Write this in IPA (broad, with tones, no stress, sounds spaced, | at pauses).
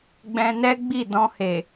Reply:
ɡ͡b ɛ̃˧ n ɛ˦ ɡ͡b i˦˨ d ɔ̃˧ h e˨